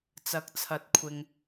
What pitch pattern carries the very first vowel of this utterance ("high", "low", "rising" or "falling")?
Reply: rising